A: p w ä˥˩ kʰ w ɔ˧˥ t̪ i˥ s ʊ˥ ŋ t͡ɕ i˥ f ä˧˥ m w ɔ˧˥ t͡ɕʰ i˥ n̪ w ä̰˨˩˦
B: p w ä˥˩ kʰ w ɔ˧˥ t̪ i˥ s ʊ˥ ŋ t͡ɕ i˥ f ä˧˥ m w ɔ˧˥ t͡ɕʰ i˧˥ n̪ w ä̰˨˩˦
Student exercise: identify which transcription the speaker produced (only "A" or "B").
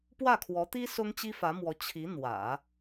B